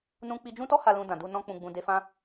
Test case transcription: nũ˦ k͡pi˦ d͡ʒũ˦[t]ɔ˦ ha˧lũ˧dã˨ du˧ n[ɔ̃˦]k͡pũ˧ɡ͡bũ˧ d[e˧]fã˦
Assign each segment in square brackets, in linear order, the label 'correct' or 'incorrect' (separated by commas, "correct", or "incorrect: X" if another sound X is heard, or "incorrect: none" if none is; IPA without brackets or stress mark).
correct, correct, correct